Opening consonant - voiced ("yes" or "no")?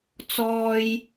no